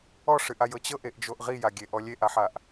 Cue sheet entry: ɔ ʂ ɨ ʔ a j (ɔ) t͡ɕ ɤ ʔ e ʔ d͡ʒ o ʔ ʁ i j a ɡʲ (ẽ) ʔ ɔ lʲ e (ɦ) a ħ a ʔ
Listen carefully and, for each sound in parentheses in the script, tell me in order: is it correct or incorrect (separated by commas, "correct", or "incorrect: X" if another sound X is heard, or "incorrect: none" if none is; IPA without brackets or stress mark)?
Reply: incorrect: ɤ, incorrect: e, incorrect: ʔ